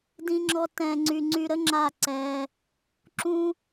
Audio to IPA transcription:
d ĩ˧ ŋ͡ǁ ɔ˧ t ɛ̃˨ ŋ͡ǀ y˨ ŋ͡ǀ y˧ ɾ ə˦ ŋ͡ǁ a˦˨ ǀ ɛ˧ | ǁ ũ˦

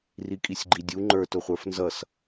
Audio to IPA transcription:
r i kʼ i sʲ ɡ͡ǃ i dʲ u ŋ͡ǃ ə˞ t ʊ χʷ ə˞ f n z ʌ s

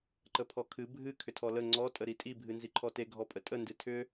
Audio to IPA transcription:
ǃ ə pʰ ɔ kʰ ɨ bʱ ɨ kʰ ʏ tʰ ɔ l ə ŋ͡ǀ ɔ tʼ ə ɾ i tʼ i bʱ ɨ n z i ǃʰ ɔ t e ɡʱ ɔ pʼ ə tʼ ə n d ɨ tʰ ʏ

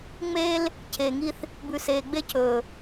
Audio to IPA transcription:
ŋ͡m eː˦ l | cʰ eː˨ ŋ i˦ θ | b ʉ˨ s eː˨ ɡ͡b e˦ cʰ ɵː˨

